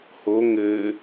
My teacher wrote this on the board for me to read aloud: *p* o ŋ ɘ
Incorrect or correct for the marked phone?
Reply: incorrect: h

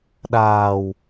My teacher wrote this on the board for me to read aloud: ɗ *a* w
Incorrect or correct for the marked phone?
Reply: incorrect: aː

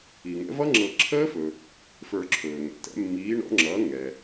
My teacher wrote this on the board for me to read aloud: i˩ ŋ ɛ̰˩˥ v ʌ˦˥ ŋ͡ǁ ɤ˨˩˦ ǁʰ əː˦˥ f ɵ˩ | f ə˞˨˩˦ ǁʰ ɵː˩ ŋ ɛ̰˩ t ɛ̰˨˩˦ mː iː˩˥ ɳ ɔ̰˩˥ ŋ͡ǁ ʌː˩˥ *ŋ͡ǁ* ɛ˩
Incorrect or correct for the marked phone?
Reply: incorrect: ŋ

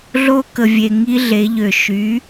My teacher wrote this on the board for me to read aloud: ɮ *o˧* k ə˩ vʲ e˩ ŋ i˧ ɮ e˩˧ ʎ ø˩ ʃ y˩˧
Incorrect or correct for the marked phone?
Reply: correct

